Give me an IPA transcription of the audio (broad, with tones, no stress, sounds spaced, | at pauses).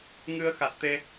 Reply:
ŋ ɨ˧ ə̯ x a˨˩ t̚ t̪ e˧